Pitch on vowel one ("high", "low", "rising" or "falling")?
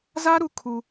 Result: high